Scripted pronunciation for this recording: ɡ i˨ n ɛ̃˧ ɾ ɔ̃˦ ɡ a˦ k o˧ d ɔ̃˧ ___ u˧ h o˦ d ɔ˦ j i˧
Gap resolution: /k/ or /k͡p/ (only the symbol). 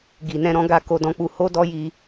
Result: k͡p